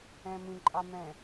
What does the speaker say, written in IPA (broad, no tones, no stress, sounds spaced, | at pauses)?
ɛ̃ m ĩ ǃʼ ɑ m ɛ̃